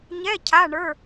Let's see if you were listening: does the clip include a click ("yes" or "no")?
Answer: no